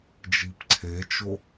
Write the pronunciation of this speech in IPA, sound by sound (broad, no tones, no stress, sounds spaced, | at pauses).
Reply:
d͡ʒ i p ǀʰ e t͡ʃ o